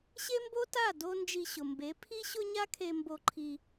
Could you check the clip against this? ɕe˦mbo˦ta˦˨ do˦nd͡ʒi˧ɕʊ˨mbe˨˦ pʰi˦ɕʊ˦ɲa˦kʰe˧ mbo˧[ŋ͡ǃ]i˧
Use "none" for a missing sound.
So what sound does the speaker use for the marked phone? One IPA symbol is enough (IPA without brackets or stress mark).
ǃʰ